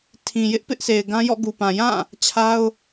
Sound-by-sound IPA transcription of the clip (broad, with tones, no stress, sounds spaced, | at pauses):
tʰ ĩ˨ j ɪ˦ ʔ p ɪ˦ ʔ sʰ e˨ ɪ̯ ɡ ã˦ j ɔ̰˦˨ ɡ u˨ p ã˨ j ã˦˨ | t͡ɕʰ a˦ ʊ̯